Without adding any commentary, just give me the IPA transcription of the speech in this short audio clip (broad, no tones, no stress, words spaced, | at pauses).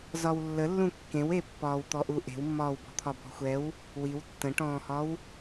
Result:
zɒwlːəlːũ kːẽwepːɒːwt̪ɔ ʔuʔe̤wmːɒːwbɔ̤ t̪ʰɒbɔ̤xʷɛw | wiw tːə̃ʈɔ̃ːhɒw